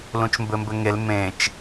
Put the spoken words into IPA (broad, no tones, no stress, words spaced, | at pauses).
lũt͡ʃmbɘmbɘŋel mẽt͡ʃ